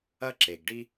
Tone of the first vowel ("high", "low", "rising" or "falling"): high